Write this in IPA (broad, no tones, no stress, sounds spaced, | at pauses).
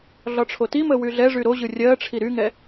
ɮ ɒ ʈ͡ʂʰ o t i m ə w y ɮ ɛ ʐ y ɾ o ʑ ɯ rʲ ɜ ʈ͡ʂʰ i ɾ y ŋ ɛ